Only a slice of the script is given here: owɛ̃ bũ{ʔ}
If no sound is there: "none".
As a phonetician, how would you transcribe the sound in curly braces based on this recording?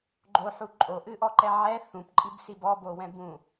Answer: none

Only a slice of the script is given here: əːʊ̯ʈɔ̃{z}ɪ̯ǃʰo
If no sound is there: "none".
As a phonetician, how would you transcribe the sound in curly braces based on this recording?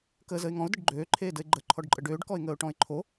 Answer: none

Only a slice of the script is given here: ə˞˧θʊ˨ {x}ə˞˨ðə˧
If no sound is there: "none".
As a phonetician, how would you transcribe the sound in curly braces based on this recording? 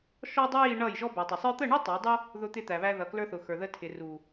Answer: x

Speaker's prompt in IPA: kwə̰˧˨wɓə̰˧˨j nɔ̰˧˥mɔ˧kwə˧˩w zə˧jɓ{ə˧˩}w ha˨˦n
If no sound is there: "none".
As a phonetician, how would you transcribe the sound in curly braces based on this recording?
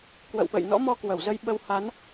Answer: ə˧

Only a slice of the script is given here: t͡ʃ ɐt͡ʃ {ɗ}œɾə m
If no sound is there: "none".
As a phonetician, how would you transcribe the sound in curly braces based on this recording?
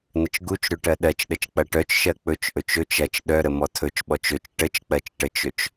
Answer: ɗ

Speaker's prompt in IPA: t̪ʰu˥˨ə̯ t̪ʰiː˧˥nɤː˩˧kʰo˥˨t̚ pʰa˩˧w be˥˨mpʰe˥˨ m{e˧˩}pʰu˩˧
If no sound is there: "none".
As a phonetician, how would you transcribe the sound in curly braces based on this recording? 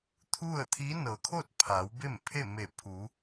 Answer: e˧˩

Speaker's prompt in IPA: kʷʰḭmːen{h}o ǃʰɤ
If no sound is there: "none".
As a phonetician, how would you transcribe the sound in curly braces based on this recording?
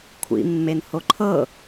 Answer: h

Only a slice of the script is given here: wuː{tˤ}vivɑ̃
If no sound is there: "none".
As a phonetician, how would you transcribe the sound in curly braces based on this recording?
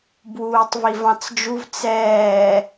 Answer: tˤ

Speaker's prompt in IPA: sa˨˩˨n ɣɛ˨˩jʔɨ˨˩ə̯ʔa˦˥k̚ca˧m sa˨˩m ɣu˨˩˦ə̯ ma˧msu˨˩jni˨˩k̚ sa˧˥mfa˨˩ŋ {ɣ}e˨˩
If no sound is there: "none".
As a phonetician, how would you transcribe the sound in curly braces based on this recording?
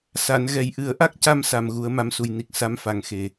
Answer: x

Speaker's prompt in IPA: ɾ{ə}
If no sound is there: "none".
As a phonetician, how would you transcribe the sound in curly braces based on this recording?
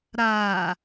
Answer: a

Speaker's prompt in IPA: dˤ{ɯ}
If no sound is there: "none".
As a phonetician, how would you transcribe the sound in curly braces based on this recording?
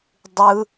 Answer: ɯ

